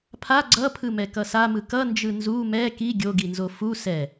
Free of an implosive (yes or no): yes